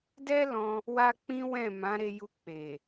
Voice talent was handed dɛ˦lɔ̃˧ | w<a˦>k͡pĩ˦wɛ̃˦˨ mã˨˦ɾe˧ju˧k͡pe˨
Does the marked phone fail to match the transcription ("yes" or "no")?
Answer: no